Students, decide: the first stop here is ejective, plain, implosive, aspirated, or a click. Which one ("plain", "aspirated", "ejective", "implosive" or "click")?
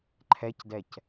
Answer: click